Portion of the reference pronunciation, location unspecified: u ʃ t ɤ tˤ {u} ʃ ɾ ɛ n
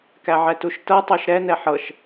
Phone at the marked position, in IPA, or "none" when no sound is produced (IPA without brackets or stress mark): o